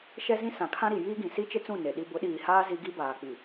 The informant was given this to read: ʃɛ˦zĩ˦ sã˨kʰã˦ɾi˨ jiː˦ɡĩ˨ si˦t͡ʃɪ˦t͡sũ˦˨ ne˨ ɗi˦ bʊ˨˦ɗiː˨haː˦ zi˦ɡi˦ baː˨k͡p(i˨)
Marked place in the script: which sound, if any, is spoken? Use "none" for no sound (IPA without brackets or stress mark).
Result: i˨